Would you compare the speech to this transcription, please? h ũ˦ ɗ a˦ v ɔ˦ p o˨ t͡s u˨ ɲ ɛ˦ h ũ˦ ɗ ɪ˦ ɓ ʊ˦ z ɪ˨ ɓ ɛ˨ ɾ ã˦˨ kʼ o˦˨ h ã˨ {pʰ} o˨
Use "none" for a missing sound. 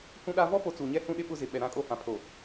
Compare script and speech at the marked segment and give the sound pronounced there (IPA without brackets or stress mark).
pʰ